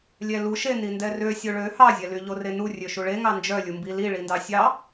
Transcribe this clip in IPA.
lʲ ɛ l u ʃ e n i n d ɛ r ø sʲ o ɭ ø h ɑ zʲ ɛ l y ʎ o r e n u rʲ ø ʃ u ɭ e ŋ ɑ n d͡ʒ œ lʲ u m b i l i ɭ i n d ɑ sʲ ɑ

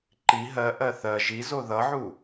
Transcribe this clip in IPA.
ǃ i ɦ ɜ ʔ ɜ θ ɜ ʒ i z o ð ʌ ʕ u

